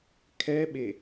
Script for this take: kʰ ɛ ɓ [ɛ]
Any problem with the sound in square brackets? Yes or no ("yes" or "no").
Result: yes